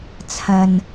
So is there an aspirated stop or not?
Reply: yes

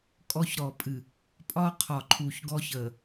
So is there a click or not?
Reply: yes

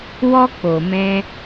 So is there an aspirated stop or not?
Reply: no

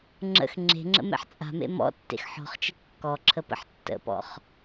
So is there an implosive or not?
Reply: no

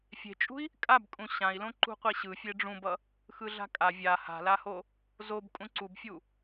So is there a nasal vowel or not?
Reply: yes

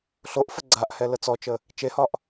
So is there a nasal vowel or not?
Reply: no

